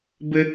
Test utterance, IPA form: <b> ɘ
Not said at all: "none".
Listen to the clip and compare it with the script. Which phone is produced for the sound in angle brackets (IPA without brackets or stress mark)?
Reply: b